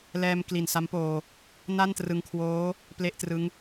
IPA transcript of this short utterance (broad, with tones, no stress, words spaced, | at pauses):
lɛː˧m kli˨˩nsa˦˥mpoː˧ | na˥˩ntrɯ˧ŋkʰwoː˦˥ | ple˥˩ʔtrɯ˦˥ŋ